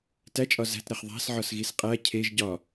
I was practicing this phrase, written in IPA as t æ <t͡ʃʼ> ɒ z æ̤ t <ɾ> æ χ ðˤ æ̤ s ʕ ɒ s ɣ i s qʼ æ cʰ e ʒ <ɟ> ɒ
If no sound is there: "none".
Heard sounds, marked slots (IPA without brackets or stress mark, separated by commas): t͡ʃʼ, ɾ, ɟ